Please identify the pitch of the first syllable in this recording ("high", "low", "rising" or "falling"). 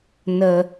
low